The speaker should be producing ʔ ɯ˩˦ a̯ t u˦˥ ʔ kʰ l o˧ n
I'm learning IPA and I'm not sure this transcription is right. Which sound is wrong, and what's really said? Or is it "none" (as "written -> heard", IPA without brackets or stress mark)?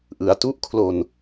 none